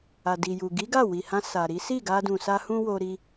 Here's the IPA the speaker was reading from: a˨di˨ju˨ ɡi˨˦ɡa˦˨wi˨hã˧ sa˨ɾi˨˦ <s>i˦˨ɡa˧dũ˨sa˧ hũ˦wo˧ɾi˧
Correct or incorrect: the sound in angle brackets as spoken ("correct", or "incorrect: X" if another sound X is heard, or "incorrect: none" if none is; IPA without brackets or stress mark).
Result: correct